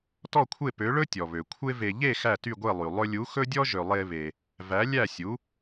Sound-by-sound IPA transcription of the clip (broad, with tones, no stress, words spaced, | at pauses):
tɔ˥˩kʷʰe˥˩pø˩˥ɭɵ˥ tʲɔ˩βø˩ kʷʰe˥ve˧ ʎe˥˩ xæ˥˩ty˥˩ɡʷe˥˩lˠy˩ lˠɵ˧lʲu˩˥ xɵ˥dʲɔ˥ ʒø˩lˠe˧βe˩ | væ˩˥lʲæ˥˩sʲu˩˥